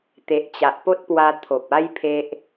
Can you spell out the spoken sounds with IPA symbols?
t̪ e˨ ʔ t͡ɕ a˨ ʔ p o˦ t̚ p w a˧ t̪ʰ o˨ p̚ a˦ j pʰ e˦ ʔ

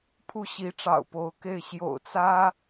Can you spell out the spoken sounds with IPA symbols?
pʰ u˥˩ ɕ i˧˥ ʈ͡ʂ ɑ̰˨˩ ʊ̯ p o˧˥ ʊ̯ k e˥˩ ɪ̯ ɕ j o̰˨˩ ʊ̯ t͡s ä˥

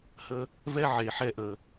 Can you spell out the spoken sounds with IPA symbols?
h ə˦ | v ɛ˦ ʕ e˨ ħ ɛ˧ ʔ ə˨

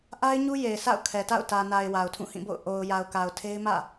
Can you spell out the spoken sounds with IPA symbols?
ʔ a˦ ɪ̯ ɲ u˦ j e˨ ɪ̯ s a̰˦˨ ʊ̯ kʰ ɛ˨ t a̰˦˨ ʊ̯ t ä˨ n a˨ ɪ̯ w a˨ ʊ̯ tʰ ũ˦˨ h ĩ˦˨ b o̰˦˨ ʊ̯ ʔ o˨ ʊ̯ j a˨ ʊ̯ k a˨ ʊ̯ tʰ e˦ ɪ̯ m ä̰˦˨

